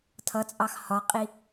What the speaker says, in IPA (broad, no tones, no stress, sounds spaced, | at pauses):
tʰ ʌ t͡sʼ ɑ x h ɒ qʼ i